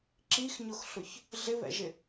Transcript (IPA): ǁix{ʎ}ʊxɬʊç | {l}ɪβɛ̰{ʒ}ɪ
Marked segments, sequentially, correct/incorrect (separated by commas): incorrect, incorrect, correct